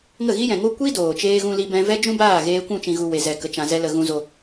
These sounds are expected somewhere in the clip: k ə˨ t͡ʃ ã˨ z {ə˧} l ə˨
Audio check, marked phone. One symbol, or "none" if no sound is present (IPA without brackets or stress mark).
ɛ˧